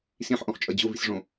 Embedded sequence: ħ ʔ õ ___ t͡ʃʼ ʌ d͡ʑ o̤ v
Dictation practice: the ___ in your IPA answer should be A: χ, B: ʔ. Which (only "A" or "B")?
A